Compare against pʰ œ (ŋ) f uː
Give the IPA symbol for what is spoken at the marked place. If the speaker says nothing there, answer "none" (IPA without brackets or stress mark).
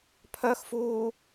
x